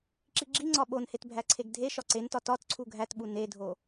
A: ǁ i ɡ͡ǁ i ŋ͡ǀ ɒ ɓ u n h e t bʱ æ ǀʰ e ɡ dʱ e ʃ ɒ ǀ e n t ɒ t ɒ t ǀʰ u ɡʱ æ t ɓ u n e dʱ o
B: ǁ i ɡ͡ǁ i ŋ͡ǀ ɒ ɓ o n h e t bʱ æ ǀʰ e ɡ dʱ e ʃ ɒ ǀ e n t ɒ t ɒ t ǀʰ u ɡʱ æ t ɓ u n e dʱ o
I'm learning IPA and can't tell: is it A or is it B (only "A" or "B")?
B